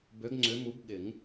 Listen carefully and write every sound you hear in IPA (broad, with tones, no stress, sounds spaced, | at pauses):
b ø˨˦ ɡ ŋ͡ǀ ʏ˨˦ m u˨˦ b ɠ ɪ˨˩˦ ŋ